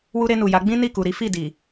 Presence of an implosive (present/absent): absent